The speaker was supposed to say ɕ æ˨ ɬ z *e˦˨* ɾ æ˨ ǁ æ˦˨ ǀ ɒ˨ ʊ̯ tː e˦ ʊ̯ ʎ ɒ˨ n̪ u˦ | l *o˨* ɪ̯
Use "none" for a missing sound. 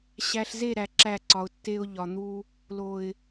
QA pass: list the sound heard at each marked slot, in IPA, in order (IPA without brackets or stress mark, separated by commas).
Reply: e˦˨, o˨